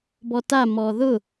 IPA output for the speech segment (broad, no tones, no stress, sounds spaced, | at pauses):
b ɔ t a m ɔ ð ʊ